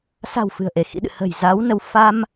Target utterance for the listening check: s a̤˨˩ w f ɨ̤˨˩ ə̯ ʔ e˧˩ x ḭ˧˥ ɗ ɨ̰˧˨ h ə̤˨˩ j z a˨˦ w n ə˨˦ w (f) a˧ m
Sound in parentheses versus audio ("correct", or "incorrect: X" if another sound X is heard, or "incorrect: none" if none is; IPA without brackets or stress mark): correct